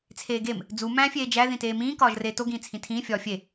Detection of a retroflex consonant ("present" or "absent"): absent